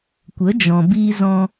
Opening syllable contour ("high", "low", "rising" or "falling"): rising